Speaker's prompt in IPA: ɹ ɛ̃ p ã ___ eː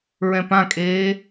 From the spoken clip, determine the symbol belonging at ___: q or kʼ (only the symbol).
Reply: kʼ